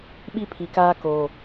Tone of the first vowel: high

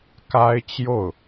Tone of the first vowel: high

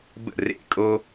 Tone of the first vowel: falling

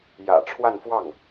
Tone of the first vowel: low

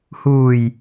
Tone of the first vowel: low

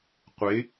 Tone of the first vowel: rising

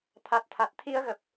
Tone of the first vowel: low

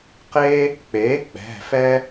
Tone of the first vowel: high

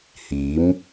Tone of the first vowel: rising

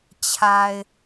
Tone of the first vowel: low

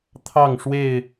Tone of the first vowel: falling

